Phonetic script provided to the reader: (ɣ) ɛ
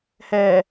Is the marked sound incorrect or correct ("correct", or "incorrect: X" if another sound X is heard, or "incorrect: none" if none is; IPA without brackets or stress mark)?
incorrect: h